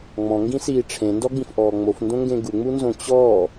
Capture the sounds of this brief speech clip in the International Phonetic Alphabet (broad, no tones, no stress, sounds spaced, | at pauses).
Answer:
ŋ͡m ɔ̃ ŋ ɡ ĩ s iː ʈ͡ʂʰ ẽ n d ɔ ɡ͡b ĩ f ʔ ɔː ŋ͡m o f n d õ ŋ ɡ ẽ ɡ u ŋ͡m u n z õ t͡ɕ ɔː